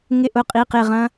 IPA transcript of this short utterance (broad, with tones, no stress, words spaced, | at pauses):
ŋɪ˥ʔʊ˧˥˧qʼi˧˥˧ qɪ˥˧ʁɐ̃˥